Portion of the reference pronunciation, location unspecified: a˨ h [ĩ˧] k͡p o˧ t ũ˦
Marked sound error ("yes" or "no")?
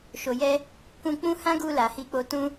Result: yes